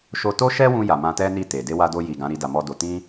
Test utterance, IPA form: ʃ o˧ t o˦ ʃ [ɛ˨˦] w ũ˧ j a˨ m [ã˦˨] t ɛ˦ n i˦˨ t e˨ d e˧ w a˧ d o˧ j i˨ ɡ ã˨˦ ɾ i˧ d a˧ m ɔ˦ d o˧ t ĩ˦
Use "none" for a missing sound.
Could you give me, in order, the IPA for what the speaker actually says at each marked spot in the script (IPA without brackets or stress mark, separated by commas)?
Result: ɛ˦, ã˧